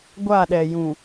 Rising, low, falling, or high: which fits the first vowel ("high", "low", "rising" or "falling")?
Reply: falling